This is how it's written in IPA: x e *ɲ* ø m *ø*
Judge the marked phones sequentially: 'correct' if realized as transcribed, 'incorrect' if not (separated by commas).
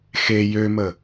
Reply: incorrect, incorrect